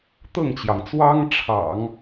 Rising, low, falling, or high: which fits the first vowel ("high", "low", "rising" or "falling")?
falling